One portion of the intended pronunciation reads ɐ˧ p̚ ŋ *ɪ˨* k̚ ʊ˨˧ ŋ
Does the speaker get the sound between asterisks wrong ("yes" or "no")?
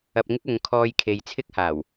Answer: yes